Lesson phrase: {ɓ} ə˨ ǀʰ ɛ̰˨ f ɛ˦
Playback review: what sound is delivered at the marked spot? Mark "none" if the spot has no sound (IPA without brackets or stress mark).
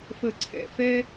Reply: f